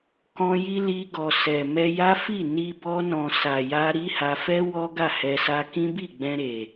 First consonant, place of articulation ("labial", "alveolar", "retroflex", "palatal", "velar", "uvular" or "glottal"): velar